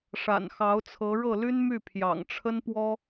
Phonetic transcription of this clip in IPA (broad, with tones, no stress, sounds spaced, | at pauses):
ʂ a̰˨˩ n x ɑ˧˥ ʊ̯ t͡sʰ ɤ˧˥ ɻ ɤ˥˩ l y˥ n m y˥˩ pʰ j ɑ̰˨˩ ŋ ʈ͡ʂʰ ə˥ n p w ɔ˥